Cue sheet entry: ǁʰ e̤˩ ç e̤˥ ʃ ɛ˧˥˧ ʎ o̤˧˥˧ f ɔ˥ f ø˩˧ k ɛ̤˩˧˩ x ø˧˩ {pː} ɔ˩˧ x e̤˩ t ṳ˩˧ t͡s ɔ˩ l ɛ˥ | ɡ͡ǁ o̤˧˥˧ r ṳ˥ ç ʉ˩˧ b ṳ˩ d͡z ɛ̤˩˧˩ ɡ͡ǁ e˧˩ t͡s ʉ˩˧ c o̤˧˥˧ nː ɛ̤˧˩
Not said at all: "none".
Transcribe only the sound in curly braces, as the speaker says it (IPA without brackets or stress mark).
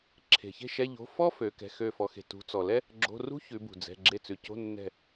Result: f